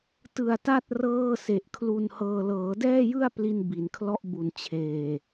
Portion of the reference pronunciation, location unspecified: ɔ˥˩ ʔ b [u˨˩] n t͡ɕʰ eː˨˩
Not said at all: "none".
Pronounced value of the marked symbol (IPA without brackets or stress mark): u˨˩